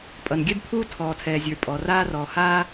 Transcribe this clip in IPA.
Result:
pʼ ʌ˩ n ɡʲ ɛ˥ b pʰ uː˥ tʰ ɔː˩ tʰ ɛː˩ zʲ ə˞˩ pʼ ɔ˩ r aː˥ r ɔː˩ h aː˥

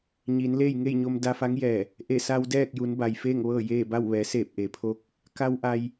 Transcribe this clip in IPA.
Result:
ɲ iː˩˧ n l eː˥˨ j ŋ e˥˨ j ɲ o˧ m d a˧ f a˧˥ ŋ j ɛː˧˩ | ʔ e˧˩ s a˧ w d ɛː˥˨ k̚ j u˩˧ n b a˩ j f eː˥˨ ŋ ʋ ɤː˥˨ j eː˥˨ b a˥˨ w ʋ ɛː˩˧ s eː˧˩ p̚ ʔ e˩ pʰ o˧ k̚ | k a˧ w ʔ a˧ j

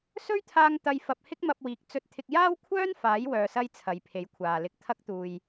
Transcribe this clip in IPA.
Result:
s ɵ˥ ɥ t̪ʰ aː˧ ŋ t̪ ɐ˧ j f ɐ˧ p̚ h ɪ˥ k̚ m ɐ˧ p̚ w iː˨˥ k̚ t͡s ɵ˧ t̚ t̪ʰ ɪ˧ k̚ j aː˥ w kʷʰ œː˥ n f aː˨˥ j w œː˨ s ɐ˧ j t͡sʰ ɐ˨ j pʰ e˨˥ j kʷʰ aː˨ l ɪ˧ k̚ t̪ʰ ɐ˥ k̚ t̪ uː˨ j

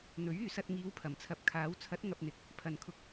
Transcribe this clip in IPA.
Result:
n̪ ɵ˨˥ ɥ yː˨ s ɐ˧ t̚ ŋ iː˨˧ w pʰ ɐ˨˩ m t͡sʰ ɐ˨˥ p̚ kʰ aː˨˥ w t͡sʰ ɐ˨˥ t̚ ŋ ɐ˧ p̚ n̪ ɪ˨˥ k̚ | pʰ ɐ˨ n kʰ ʊ˧ k̚

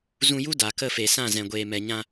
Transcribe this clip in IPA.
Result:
z ũ˧ j u˦ d a˨ k ə˦˨ f e˨ s ã˦˨ z ɛ̃˨ ɡʷ eː˨ m ɛ˨ ɲ ã˧

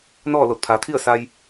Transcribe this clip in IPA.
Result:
n ɔː˥˨ l o˧˩ t̚ pʰ aː˩˧ t̪ʰ i˥˨ ə̯ s a˧ j

